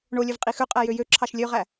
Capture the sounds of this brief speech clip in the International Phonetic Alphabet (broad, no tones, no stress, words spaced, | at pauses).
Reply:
ɳolʲøvqʼi xøqʼæjø jøǁʰɑʃ lʲøʁæ